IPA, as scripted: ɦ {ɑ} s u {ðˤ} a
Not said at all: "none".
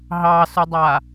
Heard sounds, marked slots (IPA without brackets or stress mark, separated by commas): ɑ, dˤ